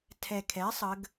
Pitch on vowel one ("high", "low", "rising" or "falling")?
low